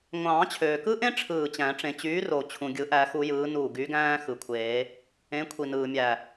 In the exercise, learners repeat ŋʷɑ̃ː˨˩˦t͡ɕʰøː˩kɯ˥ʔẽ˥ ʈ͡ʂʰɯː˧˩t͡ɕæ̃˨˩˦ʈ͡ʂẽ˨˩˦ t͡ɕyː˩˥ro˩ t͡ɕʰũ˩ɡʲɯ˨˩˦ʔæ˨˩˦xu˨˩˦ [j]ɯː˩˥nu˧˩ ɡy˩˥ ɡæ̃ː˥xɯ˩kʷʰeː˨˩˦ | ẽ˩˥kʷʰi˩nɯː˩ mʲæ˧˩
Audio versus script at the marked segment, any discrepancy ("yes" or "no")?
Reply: no